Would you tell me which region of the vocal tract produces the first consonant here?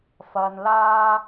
lips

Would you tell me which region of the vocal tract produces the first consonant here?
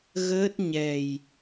velum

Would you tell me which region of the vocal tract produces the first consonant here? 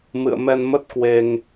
lips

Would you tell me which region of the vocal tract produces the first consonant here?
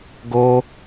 velum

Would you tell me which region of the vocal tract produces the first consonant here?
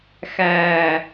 velum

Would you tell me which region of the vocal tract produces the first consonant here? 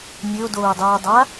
tongue tip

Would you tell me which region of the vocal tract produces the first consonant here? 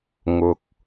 velum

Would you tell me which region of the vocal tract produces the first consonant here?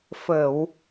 lips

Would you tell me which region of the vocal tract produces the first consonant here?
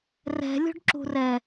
tongue tip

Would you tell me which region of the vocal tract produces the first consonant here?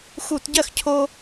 velum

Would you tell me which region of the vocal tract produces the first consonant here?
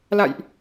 tongue tip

